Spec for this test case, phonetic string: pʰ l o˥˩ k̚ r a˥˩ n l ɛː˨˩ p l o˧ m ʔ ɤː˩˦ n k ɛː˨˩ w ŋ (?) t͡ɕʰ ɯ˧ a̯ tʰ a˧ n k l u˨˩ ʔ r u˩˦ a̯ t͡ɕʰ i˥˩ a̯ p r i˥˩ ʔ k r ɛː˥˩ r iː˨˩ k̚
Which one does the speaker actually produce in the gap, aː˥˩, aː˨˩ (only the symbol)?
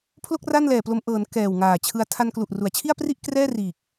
aː˨˩